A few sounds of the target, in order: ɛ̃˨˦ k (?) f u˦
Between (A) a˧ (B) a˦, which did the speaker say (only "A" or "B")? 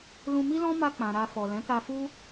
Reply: A